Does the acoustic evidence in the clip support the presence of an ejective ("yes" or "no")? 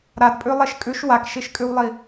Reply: yes